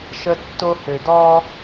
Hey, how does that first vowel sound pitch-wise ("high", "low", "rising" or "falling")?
high